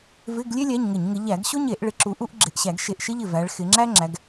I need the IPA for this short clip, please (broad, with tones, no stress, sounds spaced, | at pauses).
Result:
v ɪ˧˥˧ ɡ lʲ e˥ lʲ æ˧˥˧ ɲ ŋ ɪ˧˩˧ ɲ ŋ ɪ˨˦ ʎ æ˧˩˧ ɡ ɕ o˥ ɲ e˧˩˧ ʔ ɭ ɪ˨˦ ǁ u˨˦ ʔ u˥ ʔ ɡ͡ǁ ɪ˧˩ ʔ ɕ æ˧˩˧ ɡ ʃ e˧˩ ʔ ʃ ɪ˥ ʎ ɪ˧˩ v æ˨˦ ɭ x ɪ˨˦ ŋ͡ǁ æ˥ ŋ͡ǁ æ˨˦ ɡ